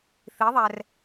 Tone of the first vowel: rising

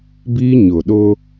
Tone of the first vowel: high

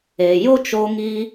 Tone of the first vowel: low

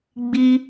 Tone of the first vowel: high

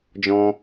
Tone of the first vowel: high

